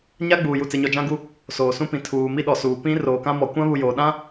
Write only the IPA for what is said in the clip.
ɲ a˦ ɡ͡b uː˨ j u˨ t͡s e˨ ɲ ɔ˨ d͡ʒ ã˦ ɡ u˦ | s oː˨ s ũ˦ p ĩ˨ tʰ uː˨ m i˦ ɗ ɔ˨ s uː˨ p ĩ˦ r oː˨ k ã˦ m ɔ˨ kʷ ã˦ β u˨ j oː˨ ɗ ã˦

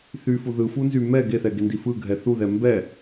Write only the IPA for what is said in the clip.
θ y f u ð ɯ f u n z y m ɛ ɡ e θ ɛ ɡ e n d i f ɯ ɡʱ ɛ θ u ð ɛ m b ɛ

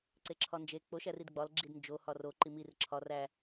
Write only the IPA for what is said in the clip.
ǀ e ǁʰ ɒ n d͡ʒ e k͡p o ʃ æ r i d ɡ͡b ɒ l ɡ͡ǁ i d n d͡ʒ o h ɒ r o ǃ i m i r ǁʰ ɒ r æ

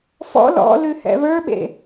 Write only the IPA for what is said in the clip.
f ɔ̰ l ɔ̰ l ʉ h ɛ̰ β ə˞ ɓ ḛ

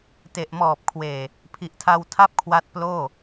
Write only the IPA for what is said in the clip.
t e˨˩ ʔ m ɔː˨˩ p̚ kʰ w eː˨˩ | pʰ i˨˩ ʔ tʰ a˧ w tʰ a˥˩ p̚ kʰ w a˦˥ t̚ p l oː˥˩

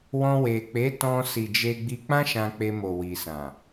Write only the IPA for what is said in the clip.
w ɔ̃˧ w e˨ k͡p e˨˦ t ɔ̃˧ s i˨ d͡ʒ e˧ ɡ͡b i˧ k͡p ã˦ ʃ ã˧ k͡p e˧ m o˨ w i˨ s ã˨

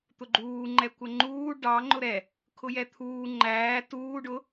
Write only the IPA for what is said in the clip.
t̪ ʊ ɡ͡ǃ uː ŋ͡ǃ ɛ kʷ ə ŋ͡ǃ uː ɖ ɑ ŋ͡ǃ ʊ ɾ ɛ | kʰ ʊ j ɛ t̪ʰ uː ŋ͡ǃ æː t uː ɖ ʊ

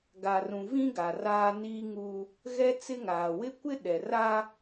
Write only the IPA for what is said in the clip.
ɡ a˨ r ũ˨ v ĩ˦ ɡ a˨ r aː˦ n iː˦ ŋ u˦ | ɣ ɛ˦ t͡s ɪ˦ ŋ aː˨ w ɪ˦ kʷ ɪ˦ ɗ ɛ˨ r a˦

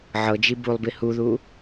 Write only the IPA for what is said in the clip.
ʕ ɤ d͡ʒ i b u lˠ b i h u ð u

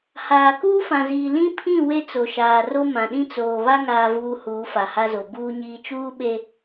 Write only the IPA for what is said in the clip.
h aː˨ k uː˦ f ã˨ z iː˨ l ĩ˦ pʰ ĩ˦˨ w e˦ t͡s o˨ ʃ aː˨ r o˦ m ã˨ ɗ ĩ˦ t͡s oː˨ β a˦ ŋ aː˨ v uː˨ h uː˨˦ f a˨ h a˦ z o˨ b uː˨ ɲ iː˨ t͡ʃ uː˦ ɓ e˦

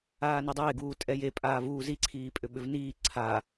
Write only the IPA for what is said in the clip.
aː n i dˤ eː ɡ uː tʼ ɛ j e pʼ aː v uː z i ǀʰ iː pʼ ʏ ɓ ʏ v n iː ǀʰ a

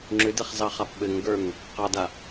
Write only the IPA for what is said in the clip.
ŋ͡ǁ ʏ d ɛ χ z ɑ χ a p ɓ ɘ ŋ ɡ ə˞ ŋ | q ɑ d a

